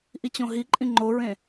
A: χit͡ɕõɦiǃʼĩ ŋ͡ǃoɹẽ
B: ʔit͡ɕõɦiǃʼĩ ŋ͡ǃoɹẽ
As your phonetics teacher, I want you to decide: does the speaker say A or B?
B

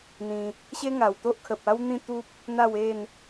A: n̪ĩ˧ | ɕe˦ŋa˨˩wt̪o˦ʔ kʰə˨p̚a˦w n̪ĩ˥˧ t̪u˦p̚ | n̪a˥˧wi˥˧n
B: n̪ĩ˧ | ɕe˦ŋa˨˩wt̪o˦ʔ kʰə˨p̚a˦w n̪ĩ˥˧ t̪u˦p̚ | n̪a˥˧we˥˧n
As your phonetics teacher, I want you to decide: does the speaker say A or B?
B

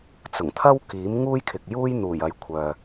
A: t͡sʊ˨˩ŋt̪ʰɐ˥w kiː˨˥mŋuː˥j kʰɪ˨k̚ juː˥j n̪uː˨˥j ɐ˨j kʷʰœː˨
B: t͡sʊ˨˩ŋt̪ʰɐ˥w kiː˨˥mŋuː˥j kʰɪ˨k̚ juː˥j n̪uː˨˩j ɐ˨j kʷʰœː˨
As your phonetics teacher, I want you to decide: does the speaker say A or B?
B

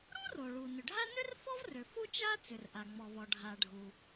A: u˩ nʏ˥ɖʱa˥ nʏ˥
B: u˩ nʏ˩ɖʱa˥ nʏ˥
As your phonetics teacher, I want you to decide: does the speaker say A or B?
B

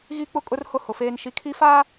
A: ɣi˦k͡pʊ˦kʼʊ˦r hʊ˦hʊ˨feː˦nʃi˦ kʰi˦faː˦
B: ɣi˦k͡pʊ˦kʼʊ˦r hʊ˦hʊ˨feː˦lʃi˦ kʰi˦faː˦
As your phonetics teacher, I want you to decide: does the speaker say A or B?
A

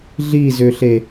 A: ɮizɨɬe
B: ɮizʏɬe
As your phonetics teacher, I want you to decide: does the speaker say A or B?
B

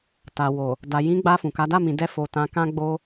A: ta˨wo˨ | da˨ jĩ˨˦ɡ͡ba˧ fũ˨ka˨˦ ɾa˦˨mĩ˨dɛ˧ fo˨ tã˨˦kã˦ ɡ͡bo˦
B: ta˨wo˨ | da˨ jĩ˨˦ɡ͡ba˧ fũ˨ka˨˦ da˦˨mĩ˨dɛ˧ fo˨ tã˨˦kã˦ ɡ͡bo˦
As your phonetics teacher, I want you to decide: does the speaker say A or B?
B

